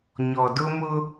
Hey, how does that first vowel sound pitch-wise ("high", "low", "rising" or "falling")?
low